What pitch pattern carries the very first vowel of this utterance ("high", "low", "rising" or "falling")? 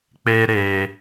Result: high